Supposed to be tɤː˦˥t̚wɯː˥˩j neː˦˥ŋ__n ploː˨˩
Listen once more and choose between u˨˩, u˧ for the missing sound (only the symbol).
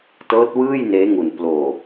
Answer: u˨˩